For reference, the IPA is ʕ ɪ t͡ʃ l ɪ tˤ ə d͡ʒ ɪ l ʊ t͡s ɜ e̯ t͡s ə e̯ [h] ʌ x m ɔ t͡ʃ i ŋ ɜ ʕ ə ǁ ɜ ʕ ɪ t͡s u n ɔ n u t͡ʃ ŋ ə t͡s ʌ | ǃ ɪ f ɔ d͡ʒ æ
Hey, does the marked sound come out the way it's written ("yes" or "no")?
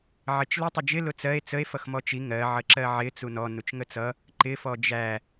no